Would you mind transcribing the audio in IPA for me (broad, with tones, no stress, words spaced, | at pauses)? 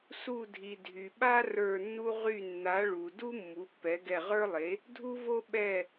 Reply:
su˦˨dʱi˨ dʱy˨ɓa˥ rə˞˦˨nːu˥ ʁy˦˨ nːa˨˥ ɭu˨ du˥ mːu˨˥pːɛ˨˥ ɡɛ˦˨ʁə˞˥lˠe˨˥ | dʱu˥vo˥ ɓɛ˦˨